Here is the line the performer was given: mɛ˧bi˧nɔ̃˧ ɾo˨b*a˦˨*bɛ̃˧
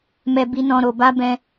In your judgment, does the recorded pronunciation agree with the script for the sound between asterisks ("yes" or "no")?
no